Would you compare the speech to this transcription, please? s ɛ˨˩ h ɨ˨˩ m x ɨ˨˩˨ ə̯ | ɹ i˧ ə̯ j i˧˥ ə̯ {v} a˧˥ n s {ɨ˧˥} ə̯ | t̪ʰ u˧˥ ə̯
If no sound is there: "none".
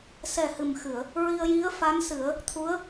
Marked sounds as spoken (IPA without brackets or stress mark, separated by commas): f, ɨ˨˩˦